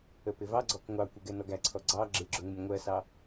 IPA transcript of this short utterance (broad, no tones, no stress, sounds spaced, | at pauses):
ə p ɪ v ɑ ɡ͡ǀ ɔ k ŋʷ ɑ kʷ ɪ ɡ ɛ n ɔ ɡ æ ǀʰ ɔ ɡ͡ǀ ɑ ɡ͡ǁ ɪ ɡ͡ǁ ʊ ŋ ɪ nʲ ŋʷ ɜ s ɑ